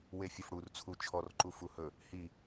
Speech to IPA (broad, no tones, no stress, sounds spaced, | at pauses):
w e fʲ ɵ f ɽ u r t͡sʰ u t͡ʃʰ ɔ r ǃ u f u h ɵ | h i